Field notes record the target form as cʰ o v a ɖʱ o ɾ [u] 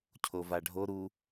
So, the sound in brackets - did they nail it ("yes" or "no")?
yes